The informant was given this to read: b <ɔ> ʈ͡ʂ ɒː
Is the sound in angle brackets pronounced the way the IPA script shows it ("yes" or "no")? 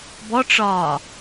yes